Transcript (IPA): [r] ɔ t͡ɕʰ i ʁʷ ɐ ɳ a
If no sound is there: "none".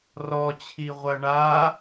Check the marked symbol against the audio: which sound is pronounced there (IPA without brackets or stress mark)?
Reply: r